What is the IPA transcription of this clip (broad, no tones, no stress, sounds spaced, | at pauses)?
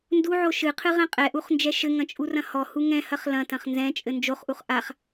n d u ʕ o ʃ ɨ qʰ ɨ ʁ ɛ̃ qʼ ɛ ʔ u χ n d͡ʒ ɛ ʃ ɘ ŋ ɐ̃ t͡ʃʼ u r ɐ̃ h ɔ h u ŋ ɛ̃ h ɐ χ l ɐ̃ t ɐ̃ χ n z ɛ̃ t͡ʃʼ ɘ n d͡ʒ o χ ʔ u χ ʔ a χ